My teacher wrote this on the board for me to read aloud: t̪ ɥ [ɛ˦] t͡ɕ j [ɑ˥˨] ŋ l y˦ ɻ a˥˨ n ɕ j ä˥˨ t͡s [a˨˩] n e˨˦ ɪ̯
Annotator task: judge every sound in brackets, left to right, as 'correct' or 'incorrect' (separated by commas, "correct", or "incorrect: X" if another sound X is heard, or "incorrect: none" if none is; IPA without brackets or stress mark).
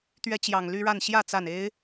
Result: correct, incorrect: ɑ˨˩, correct